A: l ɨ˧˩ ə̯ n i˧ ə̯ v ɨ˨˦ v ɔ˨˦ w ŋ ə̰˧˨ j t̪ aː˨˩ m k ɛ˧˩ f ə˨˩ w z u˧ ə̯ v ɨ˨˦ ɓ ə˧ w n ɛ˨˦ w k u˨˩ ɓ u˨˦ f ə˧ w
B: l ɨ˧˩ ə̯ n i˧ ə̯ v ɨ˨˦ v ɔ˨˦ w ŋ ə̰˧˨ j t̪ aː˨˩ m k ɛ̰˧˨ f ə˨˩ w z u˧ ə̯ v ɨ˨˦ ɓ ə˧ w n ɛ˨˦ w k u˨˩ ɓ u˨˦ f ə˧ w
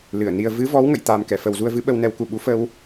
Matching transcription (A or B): A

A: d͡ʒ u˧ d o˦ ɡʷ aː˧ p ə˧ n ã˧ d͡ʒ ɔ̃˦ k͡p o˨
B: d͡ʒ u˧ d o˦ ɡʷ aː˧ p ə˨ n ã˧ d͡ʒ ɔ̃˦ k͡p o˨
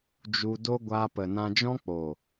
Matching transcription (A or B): B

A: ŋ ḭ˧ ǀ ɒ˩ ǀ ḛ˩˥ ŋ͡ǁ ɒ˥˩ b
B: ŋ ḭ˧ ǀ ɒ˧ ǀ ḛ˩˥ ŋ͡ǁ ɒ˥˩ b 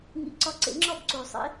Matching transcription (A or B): B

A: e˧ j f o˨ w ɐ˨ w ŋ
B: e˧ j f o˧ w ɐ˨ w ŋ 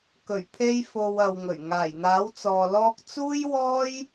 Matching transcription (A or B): A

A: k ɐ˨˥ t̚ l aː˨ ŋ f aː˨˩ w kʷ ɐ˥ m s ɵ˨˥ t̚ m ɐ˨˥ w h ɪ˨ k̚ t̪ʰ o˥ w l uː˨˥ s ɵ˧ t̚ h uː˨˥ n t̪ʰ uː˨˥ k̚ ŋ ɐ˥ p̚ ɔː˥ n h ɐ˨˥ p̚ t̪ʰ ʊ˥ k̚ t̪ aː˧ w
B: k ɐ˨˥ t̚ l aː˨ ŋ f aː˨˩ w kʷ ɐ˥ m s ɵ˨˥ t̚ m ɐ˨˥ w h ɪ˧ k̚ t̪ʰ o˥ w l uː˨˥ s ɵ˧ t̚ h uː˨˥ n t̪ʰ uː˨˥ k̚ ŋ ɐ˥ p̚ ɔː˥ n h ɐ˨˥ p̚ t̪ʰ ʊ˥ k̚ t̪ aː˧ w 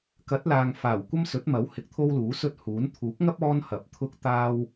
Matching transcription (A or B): B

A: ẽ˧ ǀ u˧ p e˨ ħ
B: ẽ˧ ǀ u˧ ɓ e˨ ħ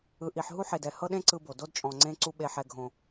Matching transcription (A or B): B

